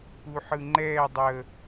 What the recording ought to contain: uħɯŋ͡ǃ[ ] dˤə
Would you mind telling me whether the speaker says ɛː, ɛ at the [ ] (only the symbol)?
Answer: ɛː